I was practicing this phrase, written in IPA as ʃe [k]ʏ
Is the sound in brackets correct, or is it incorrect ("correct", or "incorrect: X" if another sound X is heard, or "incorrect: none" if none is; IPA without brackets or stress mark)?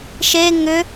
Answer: incorrect: ŋ